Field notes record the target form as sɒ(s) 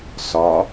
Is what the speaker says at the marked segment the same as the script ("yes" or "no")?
no